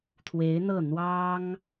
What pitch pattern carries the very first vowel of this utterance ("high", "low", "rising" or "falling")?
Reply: rising